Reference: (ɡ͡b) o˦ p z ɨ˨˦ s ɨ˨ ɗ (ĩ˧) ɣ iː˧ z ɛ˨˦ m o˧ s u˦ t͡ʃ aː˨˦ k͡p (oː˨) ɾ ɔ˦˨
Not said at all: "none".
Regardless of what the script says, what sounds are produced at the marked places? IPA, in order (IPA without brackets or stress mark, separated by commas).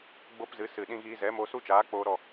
ɡ͡b, ĩ˧, oː˧